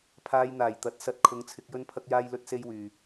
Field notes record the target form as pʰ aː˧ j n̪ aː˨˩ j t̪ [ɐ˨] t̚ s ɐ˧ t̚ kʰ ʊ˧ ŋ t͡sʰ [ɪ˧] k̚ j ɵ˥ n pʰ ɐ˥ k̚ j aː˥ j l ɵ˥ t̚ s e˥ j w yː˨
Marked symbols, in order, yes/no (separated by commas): yes, yes